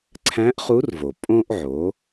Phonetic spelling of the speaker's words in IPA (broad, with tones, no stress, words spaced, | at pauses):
ǀʰæ̃˧˥ʔχu˧˥rvo˩ pʼõ˧ʔʕo˩˧